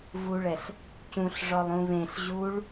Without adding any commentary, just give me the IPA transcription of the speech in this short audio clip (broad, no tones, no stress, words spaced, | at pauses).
vuɭɛɬ | cũɬ ʐɔlˠũβẽɬ ʑuɭ